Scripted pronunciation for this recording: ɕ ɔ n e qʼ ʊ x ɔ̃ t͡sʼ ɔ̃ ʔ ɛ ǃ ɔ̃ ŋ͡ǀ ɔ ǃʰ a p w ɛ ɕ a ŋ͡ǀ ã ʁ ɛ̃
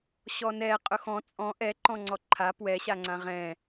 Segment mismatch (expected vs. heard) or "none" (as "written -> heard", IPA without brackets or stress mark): e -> ɛ